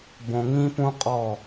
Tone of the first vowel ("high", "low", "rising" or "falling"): low